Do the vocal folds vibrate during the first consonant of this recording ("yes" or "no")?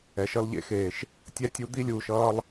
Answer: no